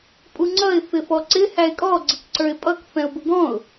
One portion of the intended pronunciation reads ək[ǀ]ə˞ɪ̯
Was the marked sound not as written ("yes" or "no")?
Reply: no